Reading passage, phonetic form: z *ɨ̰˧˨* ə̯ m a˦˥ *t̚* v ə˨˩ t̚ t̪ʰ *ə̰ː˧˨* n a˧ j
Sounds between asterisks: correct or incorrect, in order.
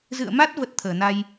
correct, correct, incorrect: əː˧˩

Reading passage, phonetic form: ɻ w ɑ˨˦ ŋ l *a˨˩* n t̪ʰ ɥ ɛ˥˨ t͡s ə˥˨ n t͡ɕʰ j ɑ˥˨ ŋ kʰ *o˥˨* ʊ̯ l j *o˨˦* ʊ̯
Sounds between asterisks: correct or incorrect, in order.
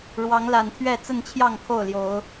correct, correct, correct

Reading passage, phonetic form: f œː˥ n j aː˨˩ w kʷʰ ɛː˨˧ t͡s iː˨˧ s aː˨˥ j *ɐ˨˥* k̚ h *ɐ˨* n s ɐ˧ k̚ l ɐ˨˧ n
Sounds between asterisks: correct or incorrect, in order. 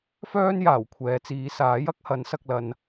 correct, incorrect: ɐ˨˥

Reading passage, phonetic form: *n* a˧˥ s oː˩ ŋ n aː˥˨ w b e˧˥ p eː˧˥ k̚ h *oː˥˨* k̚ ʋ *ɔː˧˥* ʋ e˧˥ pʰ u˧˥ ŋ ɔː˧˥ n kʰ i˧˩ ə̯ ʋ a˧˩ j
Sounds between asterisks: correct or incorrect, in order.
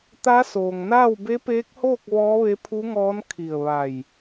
incorrect: t̪, correct, correct

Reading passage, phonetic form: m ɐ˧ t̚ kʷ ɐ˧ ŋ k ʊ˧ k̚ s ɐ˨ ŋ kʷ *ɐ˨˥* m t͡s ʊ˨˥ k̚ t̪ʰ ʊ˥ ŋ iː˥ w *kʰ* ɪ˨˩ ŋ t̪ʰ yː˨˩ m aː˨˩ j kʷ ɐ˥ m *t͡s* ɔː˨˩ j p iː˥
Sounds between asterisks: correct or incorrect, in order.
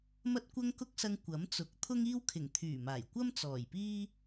correct, correct, correct

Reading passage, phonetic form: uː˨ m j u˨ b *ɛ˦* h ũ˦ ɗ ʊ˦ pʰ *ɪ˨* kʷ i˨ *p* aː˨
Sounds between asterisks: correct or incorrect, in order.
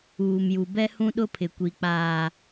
correct, correct, incorrect: k͡p

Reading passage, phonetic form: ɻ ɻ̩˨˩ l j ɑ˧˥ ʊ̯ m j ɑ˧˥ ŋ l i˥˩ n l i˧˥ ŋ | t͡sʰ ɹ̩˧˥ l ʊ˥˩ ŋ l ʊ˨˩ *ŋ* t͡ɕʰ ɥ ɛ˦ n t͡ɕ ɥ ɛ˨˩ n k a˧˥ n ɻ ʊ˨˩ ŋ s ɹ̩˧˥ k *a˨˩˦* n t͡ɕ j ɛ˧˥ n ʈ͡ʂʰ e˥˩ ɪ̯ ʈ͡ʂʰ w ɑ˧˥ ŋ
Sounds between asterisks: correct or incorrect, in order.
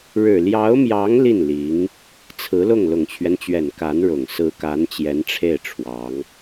correct, incorrect: a˧˥

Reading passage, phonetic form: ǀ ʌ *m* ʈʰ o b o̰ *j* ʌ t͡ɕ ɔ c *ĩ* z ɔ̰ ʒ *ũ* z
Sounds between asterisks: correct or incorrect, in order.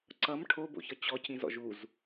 correct, incorrect: ç, correct, incorrect: u

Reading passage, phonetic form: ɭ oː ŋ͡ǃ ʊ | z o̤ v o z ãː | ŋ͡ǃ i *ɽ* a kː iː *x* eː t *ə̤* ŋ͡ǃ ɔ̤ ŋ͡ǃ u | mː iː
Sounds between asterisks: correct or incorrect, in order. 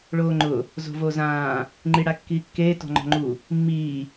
correct, incorrect: kː, incorrect: ɔ̤

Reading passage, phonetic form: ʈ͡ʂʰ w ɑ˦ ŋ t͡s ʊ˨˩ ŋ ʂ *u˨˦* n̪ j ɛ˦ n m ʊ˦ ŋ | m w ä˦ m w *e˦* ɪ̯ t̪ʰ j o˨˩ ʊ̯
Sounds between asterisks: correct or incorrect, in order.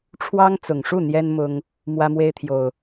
incorrect: u˥˨, correct

